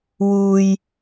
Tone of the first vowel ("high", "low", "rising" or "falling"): high